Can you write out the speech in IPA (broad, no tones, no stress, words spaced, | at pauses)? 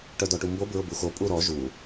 ʈœdɔʈumbo bɹʊbuxo pʼuɾɔ ʒu